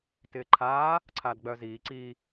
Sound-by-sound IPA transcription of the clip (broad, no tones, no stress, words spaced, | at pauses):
tɪːǃʰaː | ǀʰaːdɡ͡bœːziː ǀi